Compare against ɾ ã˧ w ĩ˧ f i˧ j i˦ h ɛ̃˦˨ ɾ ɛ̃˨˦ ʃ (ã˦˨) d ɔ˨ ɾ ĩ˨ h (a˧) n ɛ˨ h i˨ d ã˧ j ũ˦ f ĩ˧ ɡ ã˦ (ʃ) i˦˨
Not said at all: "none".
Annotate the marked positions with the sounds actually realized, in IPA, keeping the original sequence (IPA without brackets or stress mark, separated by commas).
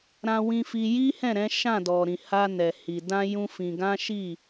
ã˦˨, a˧, ʃ